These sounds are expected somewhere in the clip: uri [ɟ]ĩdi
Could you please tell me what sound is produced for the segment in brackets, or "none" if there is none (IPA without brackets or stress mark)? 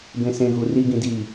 ɡ